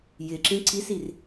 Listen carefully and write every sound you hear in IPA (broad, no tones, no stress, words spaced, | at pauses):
jɪǁĩ ǀisir